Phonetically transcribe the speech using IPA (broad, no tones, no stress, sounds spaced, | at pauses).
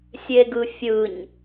sʲ e ɡ ɯ fʲ ɯ ɲ